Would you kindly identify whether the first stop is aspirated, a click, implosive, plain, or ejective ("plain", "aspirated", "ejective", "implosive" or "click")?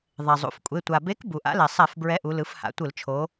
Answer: ejective